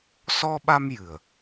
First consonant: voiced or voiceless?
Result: voiceless